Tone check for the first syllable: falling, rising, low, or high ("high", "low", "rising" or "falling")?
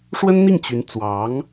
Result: high